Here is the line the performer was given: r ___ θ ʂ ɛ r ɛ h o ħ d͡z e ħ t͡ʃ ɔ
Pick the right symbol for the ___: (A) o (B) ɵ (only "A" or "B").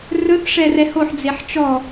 B